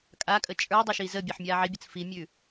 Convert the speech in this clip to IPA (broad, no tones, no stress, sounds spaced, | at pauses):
kʼ a kʼ ə t͡ʃʼ ə˞ dˤ ə ʃ i z ə bʲ ə ħ mʲ a ʕ i bʲ ə t͡s f i mʲ ʉ